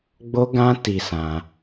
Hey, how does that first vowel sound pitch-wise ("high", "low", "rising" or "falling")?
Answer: high